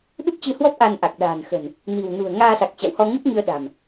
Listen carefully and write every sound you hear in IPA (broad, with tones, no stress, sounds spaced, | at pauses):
ɗ u˦˥ k̚ t͡ɕ ɨ˧ h w ɔ˦˥ p̚ ʔ a˧ n ʔ a˨˩ k̚ ɗ a̤ː˨˩ n x ə̤˨˩ n | n i̤˨˩ w n ṳ˨˩ ə̯ ŋ aː˧ s a˨˩ k̚ t͡ɕ a̰˧˨ w h ɔ˧ ŋ ɨ˦˥ p̚ ŋ ɨ˧ ə̯ ɗ a̤˨˩ m